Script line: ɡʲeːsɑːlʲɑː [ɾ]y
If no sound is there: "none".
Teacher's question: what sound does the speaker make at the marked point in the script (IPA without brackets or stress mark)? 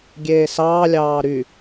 ɾ